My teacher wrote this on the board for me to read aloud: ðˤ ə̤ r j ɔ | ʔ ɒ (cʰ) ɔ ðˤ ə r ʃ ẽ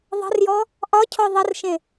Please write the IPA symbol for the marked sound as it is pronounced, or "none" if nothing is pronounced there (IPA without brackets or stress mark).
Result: cʰ